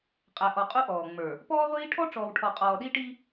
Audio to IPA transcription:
qʼ æ˨ ʔ ɔ˨ qʼ u˦ ʔ ɔː˨ ŋ͡m ə˞˨ | p ɔː˦ ʁʷ iː˦ ʈʰ ɔ˦ ʈ͡ʂ ɔː˨ w ʈʰ ɔ˨ qʼ ɔː˨ ɗ i˦ ʈ i˦

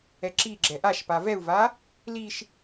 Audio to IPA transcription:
ɛ ǁ i ɡ͡ǁ ɛ ʔ a ʃ p a v ɛ u̯ v a | l i ʃ

